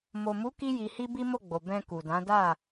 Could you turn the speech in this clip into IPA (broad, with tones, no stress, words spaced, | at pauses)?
mo˨mu˨˦ ki˧ji˨hi˧ bi˦mo˦˨ɡ͡bo˨ bɛ̃˧ku˨dã˨˦da˦˨